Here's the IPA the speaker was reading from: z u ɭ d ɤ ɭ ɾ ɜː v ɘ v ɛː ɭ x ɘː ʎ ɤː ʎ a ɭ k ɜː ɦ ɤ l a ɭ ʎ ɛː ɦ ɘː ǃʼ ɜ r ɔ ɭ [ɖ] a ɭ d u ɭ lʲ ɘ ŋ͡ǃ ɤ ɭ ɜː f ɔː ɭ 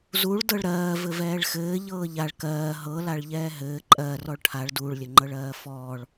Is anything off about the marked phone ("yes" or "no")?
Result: yes